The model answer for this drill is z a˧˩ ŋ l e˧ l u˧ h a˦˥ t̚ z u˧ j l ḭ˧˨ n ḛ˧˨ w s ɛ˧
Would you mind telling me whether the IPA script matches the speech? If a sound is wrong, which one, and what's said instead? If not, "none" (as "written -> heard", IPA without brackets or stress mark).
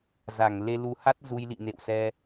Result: none